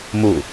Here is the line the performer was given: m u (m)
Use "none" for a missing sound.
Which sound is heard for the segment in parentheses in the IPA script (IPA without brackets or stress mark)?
none